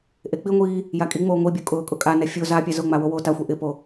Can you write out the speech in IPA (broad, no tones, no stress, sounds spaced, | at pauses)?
ʔ e k͡p i ŋʷ iː | j a kʼ i ŋ͡m oː ŋʷ i bʲ o kʼ ʊː kʼ ʊ kʼ a n ɛ fʲ o z a pʲ a z ʊ ŋ͡m a w o w oː t a xʷ e ʔ ɪ p o